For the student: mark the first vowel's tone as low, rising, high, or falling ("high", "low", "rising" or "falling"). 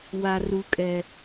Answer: high